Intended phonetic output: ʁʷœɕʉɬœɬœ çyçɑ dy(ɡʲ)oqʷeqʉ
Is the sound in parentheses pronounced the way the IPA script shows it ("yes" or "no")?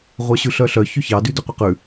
no